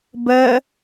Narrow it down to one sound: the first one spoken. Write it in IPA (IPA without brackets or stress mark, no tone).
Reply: b